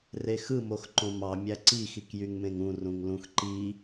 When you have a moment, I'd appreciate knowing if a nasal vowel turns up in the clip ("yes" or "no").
yes